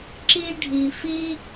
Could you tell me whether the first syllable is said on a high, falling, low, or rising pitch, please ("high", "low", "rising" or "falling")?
high